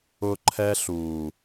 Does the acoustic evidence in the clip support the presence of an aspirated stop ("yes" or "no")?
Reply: yes